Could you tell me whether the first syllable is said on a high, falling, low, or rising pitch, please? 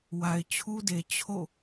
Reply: low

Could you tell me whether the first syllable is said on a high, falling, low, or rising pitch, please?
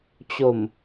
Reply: low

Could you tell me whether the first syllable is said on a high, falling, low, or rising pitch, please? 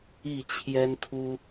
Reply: falling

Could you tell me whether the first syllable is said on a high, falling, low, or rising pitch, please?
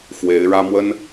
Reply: rising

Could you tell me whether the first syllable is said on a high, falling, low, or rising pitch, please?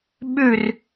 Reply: falling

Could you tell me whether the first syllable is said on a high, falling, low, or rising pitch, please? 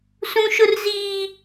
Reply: high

